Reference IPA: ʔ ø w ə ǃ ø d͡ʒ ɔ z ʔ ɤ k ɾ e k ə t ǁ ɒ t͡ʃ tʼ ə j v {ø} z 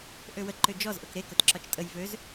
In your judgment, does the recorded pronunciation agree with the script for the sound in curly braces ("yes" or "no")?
yes